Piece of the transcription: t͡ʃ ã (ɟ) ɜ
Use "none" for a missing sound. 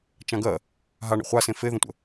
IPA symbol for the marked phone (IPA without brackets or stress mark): ɡ